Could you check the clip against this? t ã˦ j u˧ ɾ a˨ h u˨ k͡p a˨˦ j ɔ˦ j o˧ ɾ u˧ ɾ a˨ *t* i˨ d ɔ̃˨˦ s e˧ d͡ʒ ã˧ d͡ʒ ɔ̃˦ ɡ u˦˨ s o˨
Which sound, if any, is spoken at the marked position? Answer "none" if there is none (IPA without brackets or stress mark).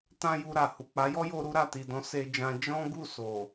t